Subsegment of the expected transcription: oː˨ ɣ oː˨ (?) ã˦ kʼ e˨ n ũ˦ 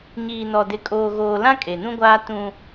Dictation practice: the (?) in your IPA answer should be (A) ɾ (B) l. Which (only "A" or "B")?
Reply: B